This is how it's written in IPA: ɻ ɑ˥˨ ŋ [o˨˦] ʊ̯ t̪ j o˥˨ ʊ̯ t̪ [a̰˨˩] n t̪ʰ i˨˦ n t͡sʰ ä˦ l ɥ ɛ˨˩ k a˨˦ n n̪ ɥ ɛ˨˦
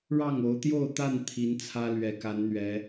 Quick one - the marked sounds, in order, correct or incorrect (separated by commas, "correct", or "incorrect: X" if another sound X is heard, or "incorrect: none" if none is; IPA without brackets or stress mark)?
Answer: correct, incorrect: a˥˨